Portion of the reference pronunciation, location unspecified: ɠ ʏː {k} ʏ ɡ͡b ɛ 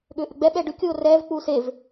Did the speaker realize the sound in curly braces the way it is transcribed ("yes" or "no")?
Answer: no